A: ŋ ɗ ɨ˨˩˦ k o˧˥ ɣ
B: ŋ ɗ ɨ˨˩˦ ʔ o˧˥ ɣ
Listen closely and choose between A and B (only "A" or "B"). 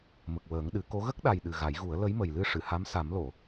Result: A